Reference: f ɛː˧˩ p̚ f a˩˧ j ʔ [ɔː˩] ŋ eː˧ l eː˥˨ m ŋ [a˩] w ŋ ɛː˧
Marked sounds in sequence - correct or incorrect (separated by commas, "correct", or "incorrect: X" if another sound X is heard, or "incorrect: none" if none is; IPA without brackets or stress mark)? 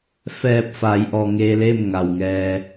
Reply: correct, correct